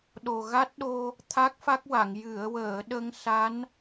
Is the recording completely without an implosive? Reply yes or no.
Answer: no